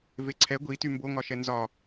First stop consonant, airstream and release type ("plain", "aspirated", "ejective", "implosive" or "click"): click